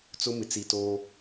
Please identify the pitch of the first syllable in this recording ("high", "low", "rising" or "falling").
high